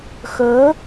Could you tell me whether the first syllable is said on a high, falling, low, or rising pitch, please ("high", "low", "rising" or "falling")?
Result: rising